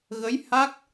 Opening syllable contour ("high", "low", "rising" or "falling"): rising